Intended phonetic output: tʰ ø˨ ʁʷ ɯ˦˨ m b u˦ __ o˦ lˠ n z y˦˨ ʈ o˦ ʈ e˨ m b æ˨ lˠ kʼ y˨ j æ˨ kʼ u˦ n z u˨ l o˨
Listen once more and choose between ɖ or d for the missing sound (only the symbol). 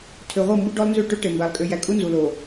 ɖ